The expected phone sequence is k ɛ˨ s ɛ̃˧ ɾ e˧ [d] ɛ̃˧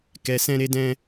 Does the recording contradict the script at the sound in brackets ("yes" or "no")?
no